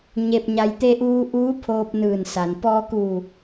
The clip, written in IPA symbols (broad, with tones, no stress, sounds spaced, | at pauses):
ɲ e˧ p̚ ɲ a˧ j t̪ e˧ ʔ uː˧ ʔ uː˧˥ pʰ oː˧ p̚ n ɯː˧˩ n s a˩ n p ɔː˧ k uː˧˩